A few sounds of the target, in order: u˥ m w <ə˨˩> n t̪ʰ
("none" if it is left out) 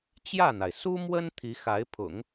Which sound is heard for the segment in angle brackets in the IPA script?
ə˥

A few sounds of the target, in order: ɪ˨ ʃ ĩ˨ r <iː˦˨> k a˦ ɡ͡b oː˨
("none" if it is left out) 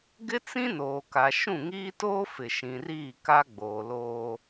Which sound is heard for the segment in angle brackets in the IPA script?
iː˦˨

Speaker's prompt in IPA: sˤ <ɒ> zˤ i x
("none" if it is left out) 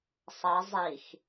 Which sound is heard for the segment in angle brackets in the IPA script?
ʌ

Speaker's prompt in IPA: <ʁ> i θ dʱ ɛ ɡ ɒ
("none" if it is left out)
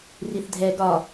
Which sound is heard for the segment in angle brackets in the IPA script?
r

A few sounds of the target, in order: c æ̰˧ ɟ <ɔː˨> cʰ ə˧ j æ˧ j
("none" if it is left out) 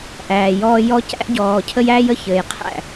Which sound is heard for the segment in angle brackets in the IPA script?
ɔː˨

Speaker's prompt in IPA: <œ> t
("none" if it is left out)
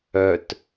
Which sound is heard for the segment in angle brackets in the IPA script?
œ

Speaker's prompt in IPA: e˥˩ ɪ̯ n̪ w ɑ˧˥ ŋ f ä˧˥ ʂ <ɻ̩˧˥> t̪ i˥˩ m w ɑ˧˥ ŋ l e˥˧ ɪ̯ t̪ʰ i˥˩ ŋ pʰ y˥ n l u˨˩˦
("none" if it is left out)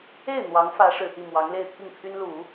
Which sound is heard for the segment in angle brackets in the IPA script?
ɻ̩˨˩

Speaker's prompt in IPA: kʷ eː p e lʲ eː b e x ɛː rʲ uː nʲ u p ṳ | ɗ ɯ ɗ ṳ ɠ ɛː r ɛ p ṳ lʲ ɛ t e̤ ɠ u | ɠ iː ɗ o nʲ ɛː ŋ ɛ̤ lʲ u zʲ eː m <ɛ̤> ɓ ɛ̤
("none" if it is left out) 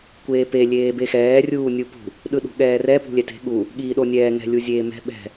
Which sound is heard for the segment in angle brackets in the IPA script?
ɛ̤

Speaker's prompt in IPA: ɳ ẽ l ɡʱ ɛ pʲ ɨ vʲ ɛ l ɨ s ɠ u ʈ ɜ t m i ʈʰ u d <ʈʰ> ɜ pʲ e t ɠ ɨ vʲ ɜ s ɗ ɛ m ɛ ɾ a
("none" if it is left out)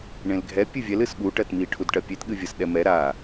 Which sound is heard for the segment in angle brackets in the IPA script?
ʈ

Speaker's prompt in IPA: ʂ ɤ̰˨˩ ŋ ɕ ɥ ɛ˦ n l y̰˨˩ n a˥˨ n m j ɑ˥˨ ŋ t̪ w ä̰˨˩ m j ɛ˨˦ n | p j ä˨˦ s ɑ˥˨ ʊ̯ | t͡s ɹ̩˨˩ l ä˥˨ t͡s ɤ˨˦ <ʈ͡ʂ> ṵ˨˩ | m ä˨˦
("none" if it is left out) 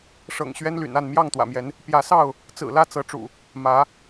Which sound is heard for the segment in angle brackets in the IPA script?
ʈ͡ʂ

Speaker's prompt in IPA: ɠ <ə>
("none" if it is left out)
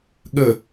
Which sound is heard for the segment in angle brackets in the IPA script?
ə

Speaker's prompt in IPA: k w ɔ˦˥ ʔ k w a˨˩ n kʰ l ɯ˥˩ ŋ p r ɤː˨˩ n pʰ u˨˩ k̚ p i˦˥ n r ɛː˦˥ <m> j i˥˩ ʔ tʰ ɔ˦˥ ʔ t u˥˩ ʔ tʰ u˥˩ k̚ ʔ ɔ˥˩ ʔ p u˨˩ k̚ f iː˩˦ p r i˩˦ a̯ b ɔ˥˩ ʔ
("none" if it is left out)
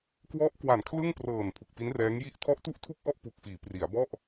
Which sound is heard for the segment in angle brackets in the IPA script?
ŋ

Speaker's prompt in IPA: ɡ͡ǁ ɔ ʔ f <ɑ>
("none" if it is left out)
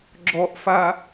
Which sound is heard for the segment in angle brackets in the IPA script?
a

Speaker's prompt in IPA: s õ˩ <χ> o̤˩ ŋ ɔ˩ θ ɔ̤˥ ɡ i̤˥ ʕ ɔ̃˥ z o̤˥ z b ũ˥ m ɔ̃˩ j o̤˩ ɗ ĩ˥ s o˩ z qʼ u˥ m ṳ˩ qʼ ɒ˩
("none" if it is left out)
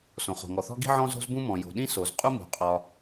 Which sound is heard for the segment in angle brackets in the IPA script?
χ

